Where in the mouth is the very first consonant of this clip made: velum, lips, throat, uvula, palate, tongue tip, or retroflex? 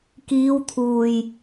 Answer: velum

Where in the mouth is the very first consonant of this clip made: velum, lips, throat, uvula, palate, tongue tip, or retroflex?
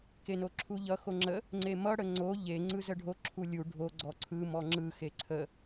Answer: velum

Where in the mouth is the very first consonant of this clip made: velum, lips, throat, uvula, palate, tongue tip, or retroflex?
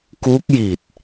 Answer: velum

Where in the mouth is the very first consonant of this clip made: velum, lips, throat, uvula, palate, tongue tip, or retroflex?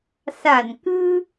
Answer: tongue tip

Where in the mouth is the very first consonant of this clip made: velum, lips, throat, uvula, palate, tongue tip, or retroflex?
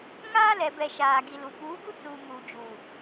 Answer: velum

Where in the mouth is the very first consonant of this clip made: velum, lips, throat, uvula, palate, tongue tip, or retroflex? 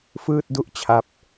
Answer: lips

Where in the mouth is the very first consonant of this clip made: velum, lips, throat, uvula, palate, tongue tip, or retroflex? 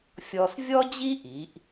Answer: lips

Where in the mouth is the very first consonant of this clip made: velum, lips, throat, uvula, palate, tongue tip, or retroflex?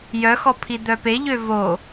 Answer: palate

